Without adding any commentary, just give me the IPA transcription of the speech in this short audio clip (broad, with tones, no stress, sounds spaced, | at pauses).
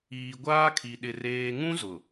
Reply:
iː˨ ɡʷ aː˦ kʰ i˨ ɗ ɪ˨ r eː˨ ŋ ũ˦ z ʊ˨